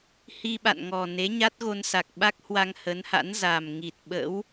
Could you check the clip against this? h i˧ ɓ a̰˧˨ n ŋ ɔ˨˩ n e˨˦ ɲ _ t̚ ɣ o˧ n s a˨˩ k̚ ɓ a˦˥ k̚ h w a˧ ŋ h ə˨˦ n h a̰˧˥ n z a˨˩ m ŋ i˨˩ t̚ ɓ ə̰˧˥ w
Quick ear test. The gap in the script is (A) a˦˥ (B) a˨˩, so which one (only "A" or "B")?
A